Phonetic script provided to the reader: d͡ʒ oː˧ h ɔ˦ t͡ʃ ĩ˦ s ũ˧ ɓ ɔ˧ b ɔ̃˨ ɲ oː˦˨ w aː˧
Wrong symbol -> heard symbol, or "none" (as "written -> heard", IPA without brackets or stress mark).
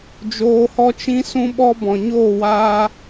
none